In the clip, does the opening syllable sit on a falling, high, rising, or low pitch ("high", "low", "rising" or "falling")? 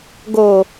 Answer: low